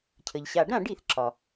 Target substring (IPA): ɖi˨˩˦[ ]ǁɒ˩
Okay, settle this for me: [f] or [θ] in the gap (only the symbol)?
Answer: θ